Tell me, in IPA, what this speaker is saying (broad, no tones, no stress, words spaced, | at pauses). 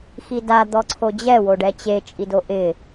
xida d̪ɔǀʰod͡ʑɛ woɖɛt͡ɕe t͡ʃʼidoʔɪ